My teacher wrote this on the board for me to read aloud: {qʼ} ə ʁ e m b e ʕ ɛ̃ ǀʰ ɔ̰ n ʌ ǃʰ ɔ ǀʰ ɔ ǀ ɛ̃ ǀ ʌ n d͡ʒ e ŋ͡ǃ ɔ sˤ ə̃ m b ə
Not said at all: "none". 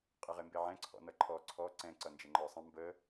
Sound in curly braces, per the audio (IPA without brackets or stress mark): qʼ